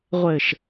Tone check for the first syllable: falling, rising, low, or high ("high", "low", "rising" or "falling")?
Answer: low